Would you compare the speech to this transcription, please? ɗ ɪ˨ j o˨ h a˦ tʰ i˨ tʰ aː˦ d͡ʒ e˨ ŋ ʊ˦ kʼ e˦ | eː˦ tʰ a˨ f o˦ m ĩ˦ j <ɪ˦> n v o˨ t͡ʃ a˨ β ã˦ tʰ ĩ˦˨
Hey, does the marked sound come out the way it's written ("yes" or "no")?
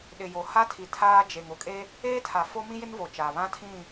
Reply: yes